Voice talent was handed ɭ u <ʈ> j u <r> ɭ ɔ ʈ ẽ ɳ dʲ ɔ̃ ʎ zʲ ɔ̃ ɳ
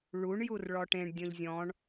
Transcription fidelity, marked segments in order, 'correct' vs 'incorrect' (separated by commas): incorrect, correct